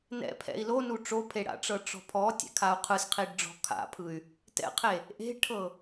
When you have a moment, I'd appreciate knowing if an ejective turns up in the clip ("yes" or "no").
no